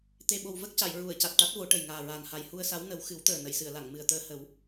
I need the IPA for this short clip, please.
t̪ e˨˩ ɓ o˨˩ w v ə˦˥ k̚ c a˨˩˨ j ɹ u˨˩˨ ə̯ c a˨˩ t̚ ʈ a˦˥ t̚ v o˨˩˦ ʈ ə˨˩ j ŋ aː˨˩ ɹ aː˨˩ n h a˨˩ j h u˧ ə̯ s a˧˥ w n ə˨˩˦ w x ɨ˨˩˦ w t̪ əː˨˩ n ə˨˩˨ j s ɨ˨˩˨ ə̯ l a˨˩˨ ŋ m ɨ˨˩ ə̯ t̪ əː˧ h ə˨˩˦ w

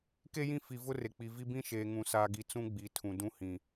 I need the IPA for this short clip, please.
k e˦ j ĩ˦˨ f i˨ v ʊ˦ r e˨ k͡p i˨ v i˦ b ĩ˦ ʃ eː˨ ŋ ũ˨ s aː˨ ɡ i˨ t͡s ũ˦ ɡ͡b i˨ tʰ ũ˨ d ũ˦ h ĩ˨

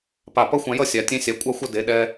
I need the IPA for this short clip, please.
p a˧˩ p ʌ˥ xʷ ã˧ j ʌ˥˧ sʲ a˩˧ tʲ ẽ˧ sʲ a˩˧ kʷʼ a˧ xʷ ʌ˧ d e˩˧ ɗ ɛ˧

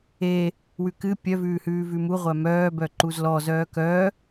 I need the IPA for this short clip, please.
e | w ʉ k ɨ pʲ œ v ʉː h ʉː v ʉ m u ʁʷ æ m œː b œ ǃ u z l ɔ z œː k œ

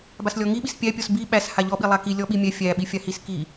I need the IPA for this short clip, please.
b a s lʲ ɔ ŋ i ɓ i s pʲ æ pʲ ɔ s b i ɓ æ s h a ʎ ɔ ɓ i lˠ a k i lʲ ɔ ɓ i mʲ ɛ fʲ æ ɓ i fʲ a h i s k i

